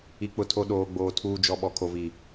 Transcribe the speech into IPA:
i˨ k͡p ʊ˨ tʰ o˨ ɗ oː˨ ɡ͡b oː˨ tʰ uː˨ d͡ʒ ɔ˨ ɓ ɔ˨ kʰ o˨ v i˨

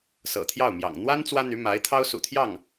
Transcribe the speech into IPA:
s ɤ̰˨˩ t̪ʰ j ɑ˥˩ ʊ̯ m j ɑ̰˨˩ ŋ n̪ w a˥ n t͡s w ä˥ n̪ y˧˥ m a˧˥ ɪ̯ t̪ʰ ɑ˥ ʊ̯ s ṵ˨˩ t̪ʰ j ɑ˥˩ ŋ

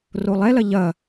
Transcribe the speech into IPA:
r o lˠ ɛ l ɐ ʎ ɐ

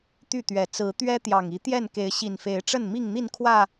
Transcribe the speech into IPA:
t̪ y˥˨ t̪ ɥ ɛ˨˩ t͡s ɹ̩˨˦ t̪ ɥ ɛ˦ t̪ j ɑ˨˩ ŋ i˨˦ t̪ j ɛ˥˨ n k e˨˦ ɪ̯ ɕ i˨˩ n f e˨˦ ɪ̯ ʈ͡ʂ ə˥˨ n m i˥˨ ŋ n̪ i˥˨ n kʰ w ä˥˨

